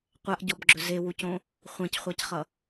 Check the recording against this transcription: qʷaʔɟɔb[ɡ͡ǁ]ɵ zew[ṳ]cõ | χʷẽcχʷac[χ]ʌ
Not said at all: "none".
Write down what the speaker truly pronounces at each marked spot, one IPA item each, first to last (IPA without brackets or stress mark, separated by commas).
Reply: ɡ͡ǁ, u, χ